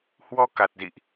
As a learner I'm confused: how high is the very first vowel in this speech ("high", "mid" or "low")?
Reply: mid